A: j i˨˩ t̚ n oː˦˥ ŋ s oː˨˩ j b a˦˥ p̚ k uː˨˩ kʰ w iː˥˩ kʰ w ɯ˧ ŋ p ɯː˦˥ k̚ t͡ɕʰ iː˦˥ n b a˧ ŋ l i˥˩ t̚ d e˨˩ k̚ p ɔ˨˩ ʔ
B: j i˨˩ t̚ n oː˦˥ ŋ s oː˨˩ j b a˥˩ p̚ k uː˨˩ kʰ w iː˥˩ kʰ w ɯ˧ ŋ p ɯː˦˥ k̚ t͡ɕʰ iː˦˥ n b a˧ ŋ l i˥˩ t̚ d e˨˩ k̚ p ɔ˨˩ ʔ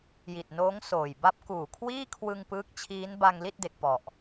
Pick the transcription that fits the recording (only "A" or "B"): A